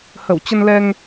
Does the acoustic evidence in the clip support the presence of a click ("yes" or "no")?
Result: no